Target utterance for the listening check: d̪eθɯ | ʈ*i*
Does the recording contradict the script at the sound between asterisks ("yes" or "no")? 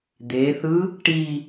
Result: no